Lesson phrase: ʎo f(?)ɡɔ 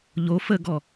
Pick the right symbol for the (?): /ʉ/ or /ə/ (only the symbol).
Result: ə